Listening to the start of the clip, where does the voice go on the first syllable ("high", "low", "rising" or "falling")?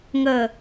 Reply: low